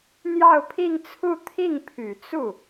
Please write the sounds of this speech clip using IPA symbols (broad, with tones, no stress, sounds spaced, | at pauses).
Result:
n̪ j ɑ˥˧ ʊ̯ pʰ i˥˧ ŋ t͡sʰ u˥˧ t̪ʰ i˥˩ ŋ pʰ y˨˩ t͡s u˥˩